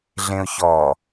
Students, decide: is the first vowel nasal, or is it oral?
nasal